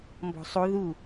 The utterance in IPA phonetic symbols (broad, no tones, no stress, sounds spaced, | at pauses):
m b ɔ̤ sˤ o ð u